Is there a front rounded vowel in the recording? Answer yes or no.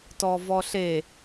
no